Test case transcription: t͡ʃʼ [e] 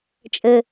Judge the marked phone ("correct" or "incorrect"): incorrect